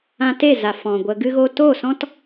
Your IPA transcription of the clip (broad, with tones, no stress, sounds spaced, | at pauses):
ã˧ t e˦˨ z a˨ f ɔ̃˨ ɡʷ ə˧ ɡ ɨ˧ ɣ o˧ t o˦˨ s ɔ̃˦ t